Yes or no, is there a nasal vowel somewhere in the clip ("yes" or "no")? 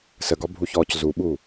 no